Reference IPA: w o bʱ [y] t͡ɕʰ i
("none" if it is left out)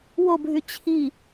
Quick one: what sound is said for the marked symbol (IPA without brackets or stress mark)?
y